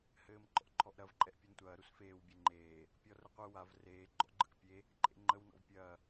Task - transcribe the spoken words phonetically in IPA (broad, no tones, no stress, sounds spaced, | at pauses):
h ɘː m ǃ ɔ̰ ǃʰ ɔ ʔ ɾ ɐ v ǃʼ ɛ ʔ pʲ u n tʷ ɐː ɾ u s f eː w bʲ e ŋ͡ǃ eː | pʲ ɔ r ə qʷ ɯ w a v r eː ɡ͡ǃ ɔ̰ ɡ͡ǃ ɯ k pʲ e | ǃʼ ḛ ŋ͡ǃ ə w n ɔ̰ v pʲ ɐː